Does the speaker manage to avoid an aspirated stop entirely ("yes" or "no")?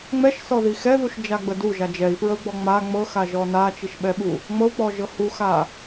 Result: yes